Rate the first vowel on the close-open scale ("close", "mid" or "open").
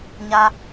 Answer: open